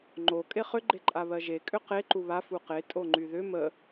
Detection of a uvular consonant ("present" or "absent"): present